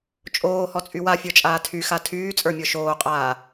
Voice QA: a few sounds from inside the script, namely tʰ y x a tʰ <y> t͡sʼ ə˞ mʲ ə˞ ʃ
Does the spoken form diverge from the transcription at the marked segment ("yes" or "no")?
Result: yes